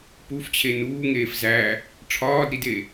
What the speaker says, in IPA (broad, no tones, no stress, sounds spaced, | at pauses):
p u f t͡ɕʰ e n uː ŋ eː f z æ | ʈ͡ʂʰ ɒː d ɾ i d e